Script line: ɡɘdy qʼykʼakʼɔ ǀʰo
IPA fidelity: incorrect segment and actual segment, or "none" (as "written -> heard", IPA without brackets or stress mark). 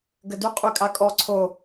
none